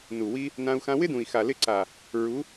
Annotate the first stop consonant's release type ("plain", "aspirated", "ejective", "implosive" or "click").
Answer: plain